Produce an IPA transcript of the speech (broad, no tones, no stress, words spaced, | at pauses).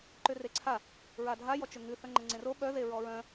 ǃʏreǀʰa | ɹadʱajɔt͡ʃʏ ŋʉ θœŋ͡ǃəŋ͡ǀẽro ɓœ ðeɹɔɹœ̃